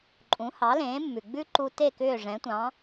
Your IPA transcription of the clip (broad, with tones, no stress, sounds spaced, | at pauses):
ǃʼ ũ˩˥ h ɑ˩˥ l ẽː˩˥ mː ʉ˩ ɡ͡b ʉ˥ ǃ u˧ t e˥˩ k ʏː˥˩ ʐ ɛ̃˩˥ tʷ ɑ̃˩˥